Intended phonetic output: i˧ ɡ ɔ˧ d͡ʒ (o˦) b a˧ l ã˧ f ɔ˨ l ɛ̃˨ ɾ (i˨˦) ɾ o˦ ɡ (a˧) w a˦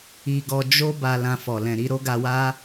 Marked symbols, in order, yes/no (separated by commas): yes, yes, yes